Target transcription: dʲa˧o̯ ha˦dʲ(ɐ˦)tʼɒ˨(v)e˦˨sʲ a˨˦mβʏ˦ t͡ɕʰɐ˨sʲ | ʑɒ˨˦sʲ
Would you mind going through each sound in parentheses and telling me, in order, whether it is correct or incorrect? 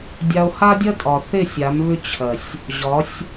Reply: correct, incorrect

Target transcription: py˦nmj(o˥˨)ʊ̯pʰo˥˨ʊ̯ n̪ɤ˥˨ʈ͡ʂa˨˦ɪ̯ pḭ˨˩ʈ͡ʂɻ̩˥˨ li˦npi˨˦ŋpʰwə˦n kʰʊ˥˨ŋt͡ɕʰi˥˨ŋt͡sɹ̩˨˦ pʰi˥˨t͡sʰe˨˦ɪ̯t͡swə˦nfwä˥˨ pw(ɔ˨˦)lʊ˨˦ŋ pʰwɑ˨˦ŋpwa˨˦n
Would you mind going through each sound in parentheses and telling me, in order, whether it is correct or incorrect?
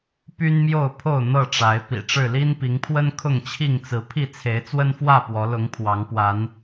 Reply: correct, correct

